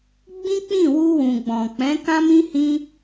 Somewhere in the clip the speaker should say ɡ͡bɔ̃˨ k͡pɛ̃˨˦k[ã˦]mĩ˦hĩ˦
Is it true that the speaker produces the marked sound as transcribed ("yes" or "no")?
yes